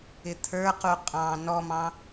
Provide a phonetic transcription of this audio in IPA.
ɪt̪ʰə˞ quqʼɑ̃ nɔmɑ̃

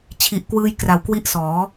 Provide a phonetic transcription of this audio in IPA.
t͡ɕʰi˨˩ʔkwɯː˧j kra˨˩wkwi˦˥ʔ sɔː˩˦

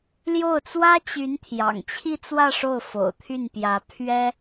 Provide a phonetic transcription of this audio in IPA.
ljo˥˩ʊ̯t͡swä˥t͡ɕy˧˥n t̪ʰjɑ̰˨˩ŋt͡ɕʰi˥˧t͡swä˥˧ ʂo˥˩ʊ̯fo̰˨˩ʊ̯t̪ʰy˥˩npjä˧˥ pʰɥɛ˥

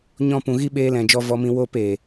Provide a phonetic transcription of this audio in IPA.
ɲɔ̃˦˨pũ˨ɣi˦ ɓeː˧lɛ̃˨d͡ʒɔ˧ vɔ˧mĩ˧ wo˦˨peː˨

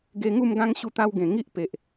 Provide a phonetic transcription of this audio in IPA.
ɡe˧ŋu˥˧mɡã˦ŋ ɕu˥˧t̪a˦wɡẽ˨˩ ŋi˦ʔpe˨ʔ

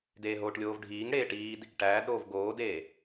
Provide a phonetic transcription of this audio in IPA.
deːɦoːʈlʲoːvɖʱiːŋ ɽeːʈiːd | ʈæːdɾoːv ɡoːdeː

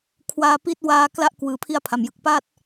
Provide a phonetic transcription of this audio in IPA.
kʰwaː˧pi˦˥t̚waː˦˥ kla˥˩ʔ kwɯː˨˩pʰi˥˩a̯pʰa˨˩mjɯ˨˩k̚ paː˥˩t̚

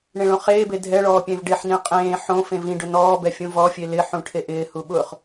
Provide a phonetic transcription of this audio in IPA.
ɳẽɭõχeːbe dʱɛɭɔː pʲẽvɖeħnĩ qʼẽː ħõ fẽvĩɖʊ nɔːbɛ fʲũvɔfʲe lɪħũ ʈʰeʔɪːhu ɓʊχ

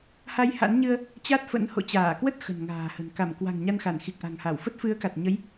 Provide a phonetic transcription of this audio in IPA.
ha˧jha̰˧˥nɲɨ˧ə̯ | t͡ɕa˦˥t̚fə̰˧˥n ho̰˧˨t͡ɕaː˧˩kwə˦˥t̚ xə̤˨˩n ŋa̤ː˨˩hə̤˨˩n ka˧˩mkwa̤˨˩ŋ ɲa˧nxa˧˩n xi˨˩k̚ʔa̤˨˩ŋha˧˩wfə˦˥t̚ fɨ˨˦ə̯ka˨˩t̚ɲə˨˦j

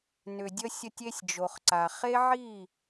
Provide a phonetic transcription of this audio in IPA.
nʏ˨dʲə˦sʲə˦tʲ e˦sʲd͡ʒo˨χǀa˨ χe˦ʕi˦˨

